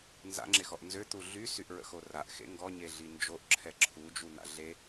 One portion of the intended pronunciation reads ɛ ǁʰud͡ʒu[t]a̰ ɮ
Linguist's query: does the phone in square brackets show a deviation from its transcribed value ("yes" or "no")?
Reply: yes